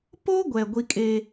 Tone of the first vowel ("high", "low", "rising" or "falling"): high